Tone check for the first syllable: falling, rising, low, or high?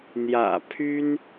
low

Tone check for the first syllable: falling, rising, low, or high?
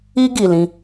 high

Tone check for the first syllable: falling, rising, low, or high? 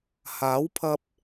rising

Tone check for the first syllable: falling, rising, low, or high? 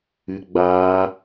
high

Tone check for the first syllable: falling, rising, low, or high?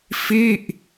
falling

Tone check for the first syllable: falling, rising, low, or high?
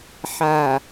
low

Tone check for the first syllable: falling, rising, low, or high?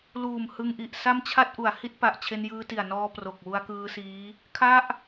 low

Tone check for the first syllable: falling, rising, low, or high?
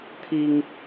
high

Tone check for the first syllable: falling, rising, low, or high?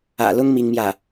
low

